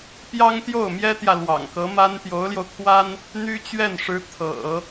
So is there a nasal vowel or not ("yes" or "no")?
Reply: no